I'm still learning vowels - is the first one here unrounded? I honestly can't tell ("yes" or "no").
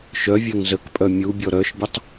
no